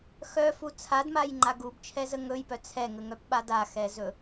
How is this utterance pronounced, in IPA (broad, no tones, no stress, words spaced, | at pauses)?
xœfu t͡sʰadmajŋ͡ǃa ɡubt͡ʃʰɛzə ŋɵjpœ t͡sʰɛŋəŋœpɓad axɛzɵ